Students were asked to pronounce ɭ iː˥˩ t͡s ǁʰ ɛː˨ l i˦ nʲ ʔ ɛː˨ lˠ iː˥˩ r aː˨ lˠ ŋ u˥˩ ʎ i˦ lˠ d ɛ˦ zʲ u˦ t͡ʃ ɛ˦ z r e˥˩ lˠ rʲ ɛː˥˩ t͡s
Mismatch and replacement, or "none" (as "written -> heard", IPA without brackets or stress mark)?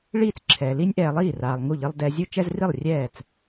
e˥˩ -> i˥˩